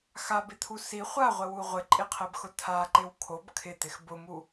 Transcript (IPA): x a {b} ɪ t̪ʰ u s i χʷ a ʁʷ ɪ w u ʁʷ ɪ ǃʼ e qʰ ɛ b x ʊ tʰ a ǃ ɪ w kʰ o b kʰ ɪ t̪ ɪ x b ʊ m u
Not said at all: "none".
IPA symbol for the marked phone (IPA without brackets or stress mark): b